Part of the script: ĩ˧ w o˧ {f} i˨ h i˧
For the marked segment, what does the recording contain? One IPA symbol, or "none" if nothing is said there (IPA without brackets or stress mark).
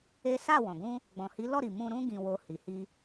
h